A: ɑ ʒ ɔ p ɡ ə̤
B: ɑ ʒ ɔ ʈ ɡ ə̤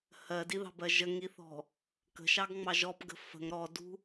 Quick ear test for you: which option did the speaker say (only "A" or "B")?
A